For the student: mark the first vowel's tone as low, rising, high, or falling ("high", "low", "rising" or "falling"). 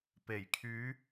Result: low